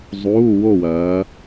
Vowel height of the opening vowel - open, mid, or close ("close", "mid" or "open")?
close